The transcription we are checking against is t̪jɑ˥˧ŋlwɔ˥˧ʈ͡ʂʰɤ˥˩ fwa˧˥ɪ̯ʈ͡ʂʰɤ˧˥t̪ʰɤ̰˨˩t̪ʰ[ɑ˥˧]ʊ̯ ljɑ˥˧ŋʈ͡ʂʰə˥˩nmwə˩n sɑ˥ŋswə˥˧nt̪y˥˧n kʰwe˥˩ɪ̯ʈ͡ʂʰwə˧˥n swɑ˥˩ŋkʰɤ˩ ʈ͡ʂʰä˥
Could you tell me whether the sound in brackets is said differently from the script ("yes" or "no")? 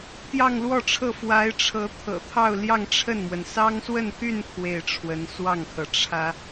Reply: no